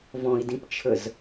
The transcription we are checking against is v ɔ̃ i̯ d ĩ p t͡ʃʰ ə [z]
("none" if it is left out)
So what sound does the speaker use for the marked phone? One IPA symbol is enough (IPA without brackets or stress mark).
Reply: z